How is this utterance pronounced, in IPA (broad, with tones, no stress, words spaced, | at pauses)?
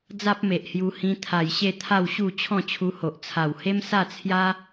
d͡za˦p̚me˨ʔhju˧ hĩ˧t̪ʰa˨˩j ɕe˥˧t̪ʰa˥˧wɕu˥˧ t͡ɕʰɔ̃˥˧t͡ɕʰu˧ho˨ʔ t͡sʰa˨˩whe˦msa˥˧t͡sʰja˦